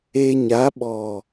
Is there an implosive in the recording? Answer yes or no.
yes